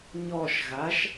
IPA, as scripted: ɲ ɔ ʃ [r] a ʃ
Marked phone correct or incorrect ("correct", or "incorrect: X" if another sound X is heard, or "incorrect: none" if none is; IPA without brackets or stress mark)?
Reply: incorrect: ɣ